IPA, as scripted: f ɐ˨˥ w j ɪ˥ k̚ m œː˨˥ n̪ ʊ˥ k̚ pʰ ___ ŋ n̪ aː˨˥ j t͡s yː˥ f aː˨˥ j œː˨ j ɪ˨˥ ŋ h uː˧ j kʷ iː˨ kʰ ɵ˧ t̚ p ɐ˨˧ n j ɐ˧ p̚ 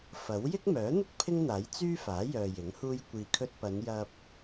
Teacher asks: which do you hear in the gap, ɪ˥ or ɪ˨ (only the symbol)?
ɪ˥